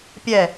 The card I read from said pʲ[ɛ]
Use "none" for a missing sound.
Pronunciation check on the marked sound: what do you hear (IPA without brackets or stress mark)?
ɛ